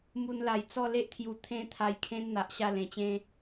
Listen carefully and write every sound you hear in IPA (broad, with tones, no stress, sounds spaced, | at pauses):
m u˧ n l a˨˩ j t͡s ɔ˥˧ l e˦ ʔ t̪ʰ j u˧ t̪ʰ ẽ˧ t̪ʰ a˧ j kʰ ẽ˦ n n̪ a˨ ʔ ɕ a˥˧ l ẽ˨˩ t͡ɕ ẽ˦